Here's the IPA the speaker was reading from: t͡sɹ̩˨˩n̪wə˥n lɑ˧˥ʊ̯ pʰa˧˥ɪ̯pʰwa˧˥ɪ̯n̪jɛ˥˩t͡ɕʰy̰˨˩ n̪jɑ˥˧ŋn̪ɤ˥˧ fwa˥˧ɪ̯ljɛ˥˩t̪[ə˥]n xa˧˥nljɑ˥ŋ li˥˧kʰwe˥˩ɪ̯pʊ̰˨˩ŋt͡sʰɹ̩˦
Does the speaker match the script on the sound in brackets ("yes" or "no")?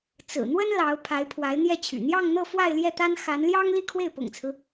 no